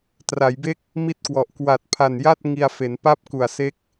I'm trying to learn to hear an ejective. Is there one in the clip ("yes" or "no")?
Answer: no